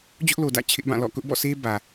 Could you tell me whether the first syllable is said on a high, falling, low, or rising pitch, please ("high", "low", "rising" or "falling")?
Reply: high